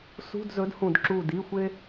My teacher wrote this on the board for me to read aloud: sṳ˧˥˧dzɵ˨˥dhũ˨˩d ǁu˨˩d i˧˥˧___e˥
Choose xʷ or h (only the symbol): xʷ